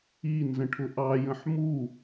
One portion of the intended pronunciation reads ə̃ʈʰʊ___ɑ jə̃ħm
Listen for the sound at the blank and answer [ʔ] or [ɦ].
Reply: ʔ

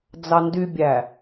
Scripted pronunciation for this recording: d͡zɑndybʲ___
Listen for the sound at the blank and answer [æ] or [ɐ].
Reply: æ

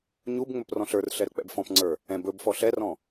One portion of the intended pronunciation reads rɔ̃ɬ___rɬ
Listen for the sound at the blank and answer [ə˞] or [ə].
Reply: ə˞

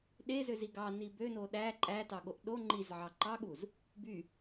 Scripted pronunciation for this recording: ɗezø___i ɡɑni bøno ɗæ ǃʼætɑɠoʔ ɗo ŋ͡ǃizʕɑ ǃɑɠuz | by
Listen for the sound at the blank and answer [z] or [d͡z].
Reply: z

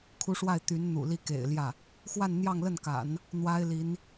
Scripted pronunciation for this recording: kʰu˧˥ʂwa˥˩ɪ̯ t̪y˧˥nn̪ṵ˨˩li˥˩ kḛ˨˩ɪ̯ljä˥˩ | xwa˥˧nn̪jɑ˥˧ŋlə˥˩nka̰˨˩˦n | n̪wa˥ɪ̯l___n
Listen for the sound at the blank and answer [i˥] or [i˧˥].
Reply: i˧˥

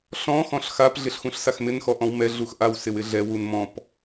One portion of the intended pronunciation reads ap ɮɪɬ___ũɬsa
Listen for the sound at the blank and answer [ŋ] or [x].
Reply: x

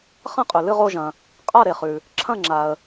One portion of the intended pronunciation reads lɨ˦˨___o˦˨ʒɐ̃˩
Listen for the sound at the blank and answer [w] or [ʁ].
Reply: ʁ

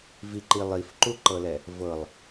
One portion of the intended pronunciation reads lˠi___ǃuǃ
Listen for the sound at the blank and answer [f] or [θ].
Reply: f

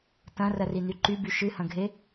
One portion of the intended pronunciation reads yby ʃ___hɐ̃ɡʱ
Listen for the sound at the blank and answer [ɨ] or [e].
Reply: ɨ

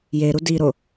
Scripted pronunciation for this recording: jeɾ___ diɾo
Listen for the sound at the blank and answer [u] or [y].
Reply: u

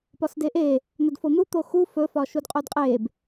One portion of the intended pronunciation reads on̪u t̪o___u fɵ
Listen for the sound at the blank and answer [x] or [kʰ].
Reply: x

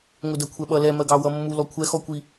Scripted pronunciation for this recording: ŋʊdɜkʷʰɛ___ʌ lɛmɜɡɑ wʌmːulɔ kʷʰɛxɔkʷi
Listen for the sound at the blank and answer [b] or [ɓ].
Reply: ɓ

